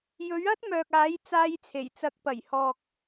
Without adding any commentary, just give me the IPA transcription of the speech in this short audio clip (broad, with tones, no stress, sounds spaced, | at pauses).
j ɵ˨˥ ɥ ɐ˥ t̚ m œː˨ k̚ aː˨˥ j t͡s aː˧ j t͡sʰ e˨˩ j t͡s ɐ˨˥ k̚ p ɐ˨˩ j h ɔː˨ k̚